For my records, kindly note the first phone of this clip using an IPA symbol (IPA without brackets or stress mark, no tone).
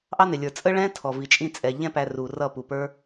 ʔ